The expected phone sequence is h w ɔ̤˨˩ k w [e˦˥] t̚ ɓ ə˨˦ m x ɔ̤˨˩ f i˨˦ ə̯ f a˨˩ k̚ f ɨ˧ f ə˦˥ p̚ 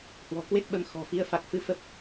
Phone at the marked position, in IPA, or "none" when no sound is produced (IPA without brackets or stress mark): e˦˥